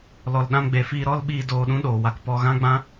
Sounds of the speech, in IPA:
lɔ˨lɗã˧mɡ͡be˨fiː˧ ɾɔ˦lɓiː˧ doː˧ɗũ˦ ɗoː˨wa˧k pɔ˧ɣã˦ɡ͡bã˦

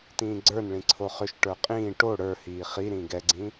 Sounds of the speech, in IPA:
tĩːɡ͡ǀə˞nɭĩ ǀʰoχʏʃʈə˞ qʼĩː ʈo ɽə˞hiː χiɾĩ ɡɛɡ͡ǀĩ

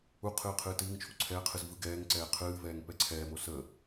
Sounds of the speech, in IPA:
uqʰɨː qʰɨːtɨːŋt͡ʃʰu ǀʰɛːqʰɨz vɯɡɛːŋǀɛː qʰɨːvɛːŋ pɛǀʰɛːmo sə

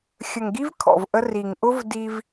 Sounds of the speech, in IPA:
xʲə˨ŋɡi˦v kʰɔ̰˨vʔə˦ ri˨ŋʔʊ˦v di˦v

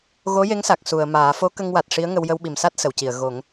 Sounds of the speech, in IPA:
ɣo˧˥je˧˥ŋsa˨˩k̚ su˨˩˨ə̯maː˨˩˦ fo˧˥kə˧ŋwa˨˩t̚ ʂi˧˥ə̯ŋə˧w jə˧wɓi˨˩msa˦˥t̚ sə˨˩˨wci˨˩˨ə̯ ɣo˨˩˦ŋ

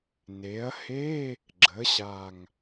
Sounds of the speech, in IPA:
ne˩˧ɐ̯he˧˥˧ | ɡ͡ǁə˩˧ɕa˨˩ŋ

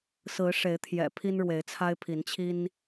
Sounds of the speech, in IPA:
sɹ̩˨˦ʂe˨˦ɪ̯t̪ʰjɛ̰˨˩ pʰi˦nɻwe˨˦ɪ̯t͡sʰa˦ɪ̯pʰi˨˦n t͡ɕʰi˦n

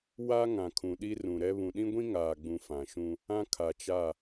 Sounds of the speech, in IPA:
wa˦ ŋã˨kʰũ˨ɗi˦ rũ˨ɾɛ˦ βũ˨ɗĩ˦ɡʷĩ˦ ŋaː˨ɡ͡bũ˨ fã˨ʃũ˦ | ã˦kʰa˨t͡ʃa˦˨

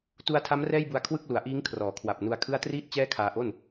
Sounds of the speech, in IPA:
tu˧a̯tʰa˦˥m rɛː˥˩jbu˧a̯ kʰwɯ˥˩k̚lu˩˦a̯ʔiː˦˥ŋ kʰrɔː˩˦kʰwa˨˩p̚nu˧a̯kʰɯ˥˩a̯ triː˥˩t̚ t͡ɕɛː˥˩kʰaː˧ʔo˥˩n

